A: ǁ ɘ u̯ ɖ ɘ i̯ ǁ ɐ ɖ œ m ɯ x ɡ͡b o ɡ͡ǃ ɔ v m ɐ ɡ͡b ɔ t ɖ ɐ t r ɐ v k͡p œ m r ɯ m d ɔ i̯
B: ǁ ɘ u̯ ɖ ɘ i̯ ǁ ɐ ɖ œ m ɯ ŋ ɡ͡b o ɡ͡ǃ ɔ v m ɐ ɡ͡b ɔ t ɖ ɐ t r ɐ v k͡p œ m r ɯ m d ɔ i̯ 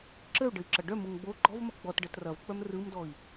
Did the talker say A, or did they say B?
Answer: B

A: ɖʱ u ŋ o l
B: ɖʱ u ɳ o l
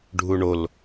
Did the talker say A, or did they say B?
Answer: B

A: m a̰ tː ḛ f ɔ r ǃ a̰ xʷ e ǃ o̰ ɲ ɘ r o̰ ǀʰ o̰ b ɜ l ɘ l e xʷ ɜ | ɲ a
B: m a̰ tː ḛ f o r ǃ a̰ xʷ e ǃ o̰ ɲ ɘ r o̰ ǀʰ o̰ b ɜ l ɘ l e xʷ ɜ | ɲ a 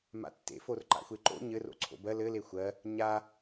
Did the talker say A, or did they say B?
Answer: B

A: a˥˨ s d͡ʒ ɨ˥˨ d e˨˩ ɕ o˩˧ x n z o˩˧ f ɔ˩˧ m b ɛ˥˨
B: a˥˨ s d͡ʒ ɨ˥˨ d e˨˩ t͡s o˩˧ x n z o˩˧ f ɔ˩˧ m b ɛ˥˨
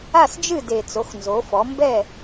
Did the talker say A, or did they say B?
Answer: B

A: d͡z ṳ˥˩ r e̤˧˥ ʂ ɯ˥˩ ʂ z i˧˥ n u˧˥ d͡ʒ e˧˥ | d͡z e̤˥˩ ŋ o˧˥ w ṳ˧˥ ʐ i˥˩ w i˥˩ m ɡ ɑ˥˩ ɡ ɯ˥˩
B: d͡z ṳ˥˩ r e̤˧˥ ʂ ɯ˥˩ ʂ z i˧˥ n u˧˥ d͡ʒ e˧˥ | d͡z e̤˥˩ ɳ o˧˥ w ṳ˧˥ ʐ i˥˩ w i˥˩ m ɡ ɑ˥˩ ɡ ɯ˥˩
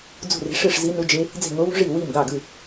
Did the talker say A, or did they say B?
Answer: A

